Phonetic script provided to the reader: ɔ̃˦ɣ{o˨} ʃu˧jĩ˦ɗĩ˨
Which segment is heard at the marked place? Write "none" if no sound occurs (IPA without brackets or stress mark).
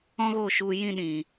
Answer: o˦˨